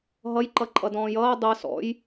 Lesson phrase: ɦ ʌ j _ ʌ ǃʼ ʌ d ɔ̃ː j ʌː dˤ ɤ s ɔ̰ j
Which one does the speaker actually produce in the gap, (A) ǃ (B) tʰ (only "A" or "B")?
A